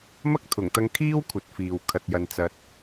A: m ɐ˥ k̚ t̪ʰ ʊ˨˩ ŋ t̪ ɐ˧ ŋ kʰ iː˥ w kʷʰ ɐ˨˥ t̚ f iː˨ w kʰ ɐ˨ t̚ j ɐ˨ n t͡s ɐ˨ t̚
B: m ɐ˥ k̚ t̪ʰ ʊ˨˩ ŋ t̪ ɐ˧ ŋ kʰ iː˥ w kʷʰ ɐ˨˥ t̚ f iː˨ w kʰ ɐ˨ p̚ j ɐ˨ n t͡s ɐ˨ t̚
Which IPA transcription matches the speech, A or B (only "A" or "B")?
A